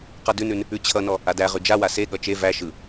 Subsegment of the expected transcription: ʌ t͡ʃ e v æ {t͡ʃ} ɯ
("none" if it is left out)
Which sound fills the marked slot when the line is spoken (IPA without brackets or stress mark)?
ʃ